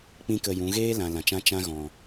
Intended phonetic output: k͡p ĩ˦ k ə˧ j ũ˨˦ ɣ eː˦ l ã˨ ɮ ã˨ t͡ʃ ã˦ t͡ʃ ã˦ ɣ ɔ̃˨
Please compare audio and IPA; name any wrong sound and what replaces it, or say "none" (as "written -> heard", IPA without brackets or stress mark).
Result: ɮ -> l